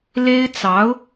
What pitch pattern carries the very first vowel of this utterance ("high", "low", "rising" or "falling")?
high